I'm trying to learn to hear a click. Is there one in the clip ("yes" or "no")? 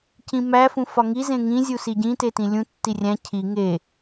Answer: no